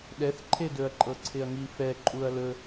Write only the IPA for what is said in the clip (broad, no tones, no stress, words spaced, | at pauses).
ɗɛθǃʰedɵɐ̯ǃʼɤ ǀʰɪɐ̯ŋifɛ ǃʼuɐ̯lɵ